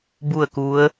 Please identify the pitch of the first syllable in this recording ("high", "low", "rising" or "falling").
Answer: falling